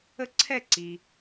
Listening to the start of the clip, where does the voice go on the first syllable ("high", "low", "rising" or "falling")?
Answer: falling